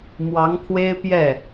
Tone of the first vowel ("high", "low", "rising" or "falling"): rising